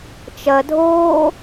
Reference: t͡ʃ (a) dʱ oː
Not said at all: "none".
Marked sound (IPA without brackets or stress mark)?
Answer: ɐ